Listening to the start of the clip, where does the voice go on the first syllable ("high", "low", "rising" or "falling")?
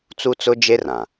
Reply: high